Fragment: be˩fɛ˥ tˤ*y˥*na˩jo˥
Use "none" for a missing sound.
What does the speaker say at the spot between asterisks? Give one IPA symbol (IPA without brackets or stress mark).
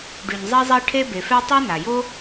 e˥